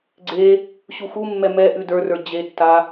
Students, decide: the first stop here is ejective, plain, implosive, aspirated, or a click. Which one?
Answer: click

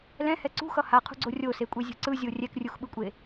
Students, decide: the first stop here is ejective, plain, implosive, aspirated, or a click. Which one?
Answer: click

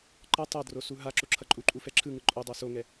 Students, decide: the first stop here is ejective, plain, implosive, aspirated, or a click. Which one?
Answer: click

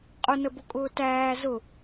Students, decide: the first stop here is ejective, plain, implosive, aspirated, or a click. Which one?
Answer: ejective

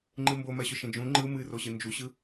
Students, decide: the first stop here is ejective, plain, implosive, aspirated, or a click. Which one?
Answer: click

